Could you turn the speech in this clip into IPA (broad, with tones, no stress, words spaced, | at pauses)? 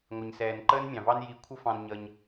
ŋʷɪ˨ɲsɛː˨n ǃəː˦nmʲɑ̃˨vɑ˦n ji˧ kʷʰə˦fɑ̃˧n ɲʌ˧ɲ